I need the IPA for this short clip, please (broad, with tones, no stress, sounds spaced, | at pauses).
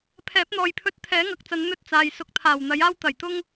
pʰ ɛː˨˥ p̚ n̪ ɔː˨ j pʰ ɵ˧ t̚ t̪ʰ ɛː˨˥ ŋ ɐ˨ k̚ t͡s ɐ˨˧ n n̪ ɵ˥ t̚ t͡s aː˨ j s ʊ˨˥ k̚ t̪ʰ aː˨˩ w n̪ ɐ˨˥ j aː˥ w t̪ ɐ˨˩ j t̪ ʊ˥ ŋ